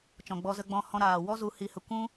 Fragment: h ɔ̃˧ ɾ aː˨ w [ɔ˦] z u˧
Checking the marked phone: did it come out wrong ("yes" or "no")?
no